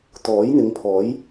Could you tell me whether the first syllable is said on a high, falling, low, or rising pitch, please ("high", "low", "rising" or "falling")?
rising